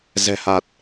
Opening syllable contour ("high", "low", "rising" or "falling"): low